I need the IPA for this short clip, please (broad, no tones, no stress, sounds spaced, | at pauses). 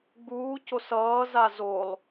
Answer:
ɡ͡b uː c o s ʌː z a z o lˠ